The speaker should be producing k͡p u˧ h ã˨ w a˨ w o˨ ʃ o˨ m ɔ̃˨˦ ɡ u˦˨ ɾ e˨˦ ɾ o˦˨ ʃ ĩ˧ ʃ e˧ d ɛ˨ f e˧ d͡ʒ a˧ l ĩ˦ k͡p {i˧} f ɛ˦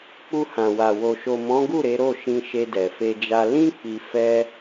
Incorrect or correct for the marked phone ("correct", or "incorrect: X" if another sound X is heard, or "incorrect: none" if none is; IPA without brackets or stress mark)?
correct